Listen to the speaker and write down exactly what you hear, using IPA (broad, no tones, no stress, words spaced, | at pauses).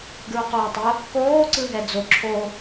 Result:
ɡɹʊqoːtˤʊ | koː ǀɯɦɛd͡zo ǁʰo